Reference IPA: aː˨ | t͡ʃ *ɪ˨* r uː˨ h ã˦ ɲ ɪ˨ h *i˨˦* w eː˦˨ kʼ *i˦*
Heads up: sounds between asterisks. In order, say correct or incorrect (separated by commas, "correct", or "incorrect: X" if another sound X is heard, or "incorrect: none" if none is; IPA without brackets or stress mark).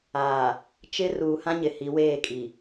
incorrect: ɪ˦, correct, incorrect: i˨